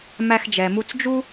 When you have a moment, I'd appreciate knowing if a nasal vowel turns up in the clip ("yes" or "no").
no